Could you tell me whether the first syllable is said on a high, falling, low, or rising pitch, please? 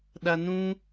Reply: low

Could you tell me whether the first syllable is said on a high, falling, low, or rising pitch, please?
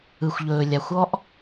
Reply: low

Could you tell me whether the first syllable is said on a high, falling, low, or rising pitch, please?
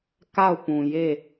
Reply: falling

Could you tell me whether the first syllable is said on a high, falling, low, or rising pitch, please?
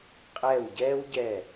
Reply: falling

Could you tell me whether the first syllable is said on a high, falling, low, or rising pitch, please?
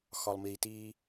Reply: low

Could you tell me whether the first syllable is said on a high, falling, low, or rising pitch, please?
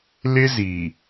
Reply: high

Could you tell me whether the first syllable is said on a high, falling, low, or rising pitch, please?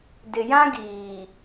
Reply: low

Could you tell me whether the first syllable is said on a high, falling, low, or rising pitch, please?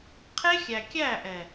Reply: high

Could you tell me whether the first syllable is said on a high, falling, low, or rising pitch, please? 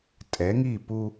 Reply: rising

